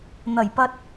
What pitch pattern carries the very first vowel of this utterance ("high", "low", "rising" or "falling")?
low